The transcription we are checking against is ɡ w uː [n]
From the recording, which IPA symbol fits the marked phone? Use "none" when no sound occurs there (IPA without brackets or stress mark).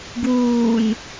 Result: n